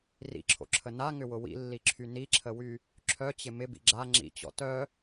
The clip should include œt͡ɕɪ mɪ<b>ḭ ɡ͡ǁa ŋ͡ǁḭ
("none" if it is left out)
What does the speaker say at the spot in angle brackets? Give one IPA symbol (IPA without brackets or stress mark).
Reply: b